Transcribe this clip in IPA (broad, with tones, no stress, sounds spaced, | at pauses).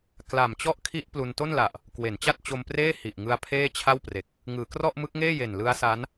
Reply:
k l a˨˩ m t͡ɕ ɔ˥˩ ʔ kʰ i˦˥ ʔ p l u˧ n t o˥˩ n l a˨˩ ʔ | k w e˩˦ n t͡ɕ a˥˩ t̚ t͡ɕ o˧ m p r eː˥˩ h i˨˩ ʔ ŋ ɯ˧ a̯ pʰ eː˥˩ t͡ɕʰ a˥˩ w p r e˨˩ k̚ | ŋ ɯː˩˦ k r ɔ˥˩ ʔ m ɯ˦˥ k̚ ŋ eː˥˩ j e˨˩ n l ɯ˦˥ a̯ s a˦˥ n